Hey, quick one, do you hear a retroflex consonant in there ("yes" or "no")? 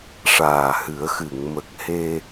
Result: yes